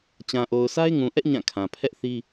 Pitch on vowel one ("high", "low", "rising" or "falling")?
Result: low